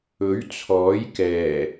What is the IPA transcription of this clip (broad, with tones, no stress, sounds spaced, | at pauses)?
ɵ˨˥ ɥ t͡sʰ ɔː˨˥ j k ɛː˨˩